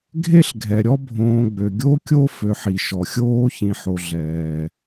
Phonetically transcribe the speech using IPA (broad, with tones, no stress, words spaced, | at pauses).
ɡʱe˦ɬɡʱɛ˩ ɾʲɔ˥bʱõː˨ɡ͡bø˩ ɡʲo˦kʲo˦ fø˨ħi˩ ʃɔ˩xʲoː˥çĩ˨ħo˨ ɮɛː˩